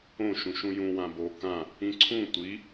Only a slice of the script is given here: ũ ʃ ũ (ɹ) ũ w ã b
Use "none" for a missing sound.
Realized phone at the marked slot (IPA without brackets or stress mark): j